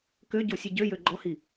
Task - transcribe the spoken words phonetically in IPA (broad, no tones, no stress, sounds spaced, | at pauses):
k ø ɟ o sʲ e ɟ ø j ø ɡ͡ǃ ɔ h i